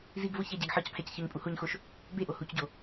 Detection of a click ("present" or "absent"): absent